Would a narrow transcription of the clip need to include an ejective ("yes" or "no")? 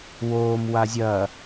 no